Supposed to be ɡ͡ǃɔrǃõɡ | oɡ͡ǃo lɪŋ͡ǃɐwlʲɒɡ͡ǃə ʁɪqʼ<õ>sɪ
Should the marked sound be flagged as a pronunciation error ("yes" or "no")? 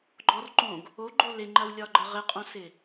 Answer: no